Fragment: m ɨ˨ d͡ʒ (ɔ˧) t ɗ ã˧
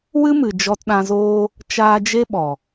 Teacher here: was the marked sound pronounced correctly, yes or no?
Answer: yes